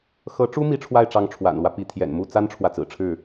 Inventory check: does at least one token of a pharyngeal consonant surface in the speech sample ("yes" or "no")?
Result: no